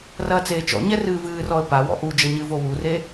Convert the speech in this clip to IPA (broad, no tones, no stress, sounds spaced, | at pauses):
r ɐː t͡s eː t͡ʃ ɔ̰ ɲ ɛ r ɨː v ɨː r ɔ ə̯ p a w ɔ̰ ʔ u d͡ʒ ɐ ɲ ɨ v o w u r e